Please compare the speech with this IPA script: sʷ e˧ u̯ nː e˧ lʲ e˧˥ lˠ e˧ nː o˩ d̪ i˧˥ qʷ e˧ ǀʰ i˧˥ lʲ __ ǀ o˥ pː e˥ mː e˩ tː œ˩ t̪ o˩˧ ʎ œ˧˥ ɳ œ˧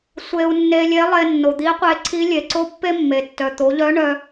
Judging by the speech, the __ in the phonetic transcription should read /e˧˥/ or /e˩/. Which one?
e˩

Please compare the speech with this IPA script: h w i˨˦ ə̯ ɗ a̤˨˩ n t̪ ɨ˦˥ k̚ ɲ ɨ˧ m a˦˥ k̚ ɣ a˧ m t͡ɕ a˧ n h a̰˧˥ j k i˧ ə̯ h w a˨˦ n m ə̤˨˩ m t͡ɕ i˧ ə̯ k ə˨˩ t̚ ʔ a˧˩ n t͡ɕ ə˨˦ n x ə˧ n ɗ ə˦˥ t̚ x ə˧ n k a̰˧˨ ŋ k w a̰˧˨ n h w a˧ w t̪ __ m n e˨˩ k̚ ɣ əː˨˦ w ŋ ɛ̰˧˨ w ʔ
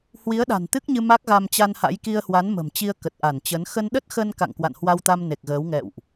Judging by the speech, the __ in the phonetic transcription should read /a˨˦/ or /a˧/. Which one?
a˧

